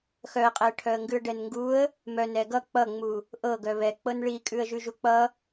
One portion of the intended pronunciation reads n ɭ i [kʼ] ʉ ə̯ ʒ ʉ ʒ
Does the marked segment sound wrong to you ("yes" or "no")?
no